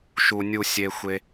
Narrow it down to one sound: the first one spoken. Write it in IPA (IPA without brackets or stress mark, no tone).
ʃ